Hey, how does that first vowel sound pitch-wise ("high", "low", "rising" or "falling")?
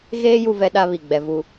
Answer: high